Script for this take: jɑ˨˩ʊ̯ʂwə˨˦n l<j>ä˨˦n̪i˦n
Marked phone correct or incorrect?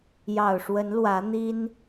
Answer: incorrect